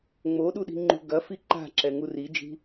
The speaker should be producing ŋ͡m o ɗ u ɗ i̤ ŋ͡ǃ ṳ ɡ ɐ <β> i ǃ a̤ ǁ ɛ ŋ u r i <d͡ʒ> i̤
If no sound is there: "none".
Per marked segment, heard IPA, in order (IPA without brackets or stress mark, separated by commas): f, d͡ʒ